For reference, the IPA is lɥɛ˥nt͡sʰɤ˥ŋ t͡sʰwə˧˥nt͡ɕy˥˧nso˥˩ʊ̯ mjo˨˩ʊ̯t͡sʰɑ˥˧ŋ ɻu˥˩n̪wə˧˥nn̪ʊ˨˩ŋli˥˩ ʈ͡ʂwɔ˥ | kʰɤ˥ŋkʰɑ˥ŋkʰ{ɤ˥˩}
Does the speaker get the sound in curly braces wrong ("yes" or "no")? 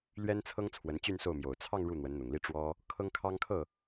no